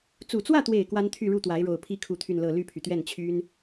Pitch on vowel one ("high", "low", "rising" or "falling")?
low